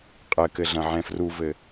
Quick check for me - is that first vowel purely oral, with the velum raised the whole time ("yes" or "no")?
yes